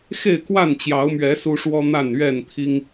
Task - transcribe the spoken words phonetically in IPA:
xe˥˨ɪ̯kwa˥˨nt͡ɕjɑ˨˦ʊ̯mɥɛ˨˦ su˦ʂwɔ˦ n̪a˥˨nɥɛ˥˨nt̪ʰi˦ŋ

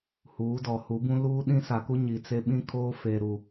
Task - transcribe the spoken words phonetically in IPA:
huː˨˦dɔ˨hu˨˦bũ˦ luː˦ ɗĩ˦sa˨ku˦ ɲi˨t͡se˦ ɓĩ˦kʰoː˦ fe˨ ɾu˨

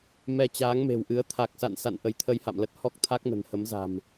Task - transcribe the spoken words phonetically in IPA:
mɛ˧ t͡ɕaː˨˦ŋme̤˨˩wʔɨ˨˦ə̯ t̪ʰa˨˩k̚sa̰˧˨nsa̰˧˨n ʔə˨˦jt̪ʰə˧jha̰˧˨mlə˦˥t̚ hɔ˦˥k̚t̪ʰa˦˥k̚nə̤˨˩n hə˨˦mza̤˨˩m

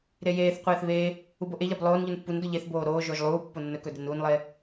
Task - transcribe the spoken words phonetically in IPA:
ɾejeːθqʷeːθ βeː | uboʔeʎab lˠoːnʎun pːundo ʎeθboː ɾoːʒoːʒ lˠuː pːonːɵkɵ denuːnlˠeː

